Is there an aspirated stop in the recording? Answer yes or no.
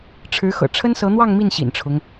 yes